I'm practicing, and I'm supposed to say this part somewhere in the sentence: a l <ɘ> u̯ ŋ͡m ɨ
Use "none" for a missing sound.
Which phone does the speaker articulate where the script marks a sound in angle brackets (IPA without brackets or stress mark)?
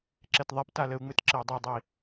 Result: ɘ